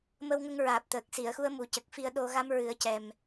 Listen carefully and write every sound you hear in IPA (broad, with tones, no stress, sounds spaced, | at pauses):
m ə˧ w ŋ ə˧ ŋ ɹ aː˨˩ p̚ t̪ əː˨˩ k̚ s i˨˩˨ ə̯ x u˧ ə̯ m u˨˩ c ə˨˩ k̚ f i˧ ə̯ ɗ o˧ ɣ a˧ m ɹ ɨ˨˩˦ ə̯ c ɛ˨˩ m